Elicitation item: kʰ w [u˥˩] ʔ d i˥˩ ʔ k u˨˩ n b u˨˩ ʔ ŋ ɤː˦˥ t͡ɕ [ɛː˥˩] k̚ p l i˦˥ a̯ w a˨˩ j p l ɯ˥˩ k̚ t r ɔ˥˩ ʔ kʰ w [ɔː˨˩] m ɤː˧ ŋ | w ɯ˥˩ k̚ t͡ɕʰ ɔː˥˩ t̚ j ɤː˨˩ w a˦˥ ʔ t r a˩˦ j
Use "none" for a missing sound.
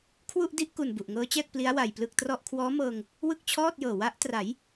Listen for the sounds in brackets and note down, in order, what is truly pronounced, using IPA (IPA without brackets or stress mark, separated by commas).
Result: u˥˩, ɛː˥˩, ɔː˦˥